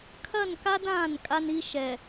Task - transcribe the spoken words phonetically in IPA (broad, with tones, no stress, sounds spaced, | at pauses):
kʰ ɐ˦˨ n k a˦ d ãː˦˨ n kʼ a˦ n i˦ ʃ ɛ˨